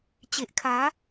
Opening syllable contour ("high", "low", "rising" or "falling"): low